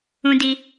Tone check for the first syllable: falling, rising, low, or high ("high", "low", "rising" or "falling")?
high